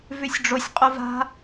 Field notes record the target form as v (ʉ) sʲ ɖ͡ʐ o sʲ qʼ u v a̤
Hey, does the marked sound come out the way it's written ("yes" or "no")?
yes